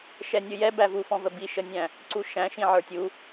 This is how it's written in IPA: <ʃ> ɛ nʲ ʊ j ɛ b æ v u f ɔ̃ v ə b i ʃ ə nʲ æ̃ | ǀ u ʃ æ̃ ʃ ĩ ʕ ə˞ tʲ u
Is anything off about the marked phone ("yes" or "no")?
no